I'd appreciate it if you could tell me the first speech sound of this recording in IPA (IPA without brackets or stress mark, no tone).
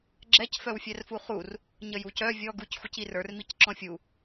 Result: ɡ͡ǁ